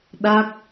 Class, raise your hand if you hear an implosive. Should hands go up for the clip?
yes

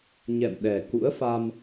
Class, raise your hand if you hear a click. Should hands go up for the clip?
no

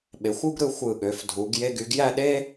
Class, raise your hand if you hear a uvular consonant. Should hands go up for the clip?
no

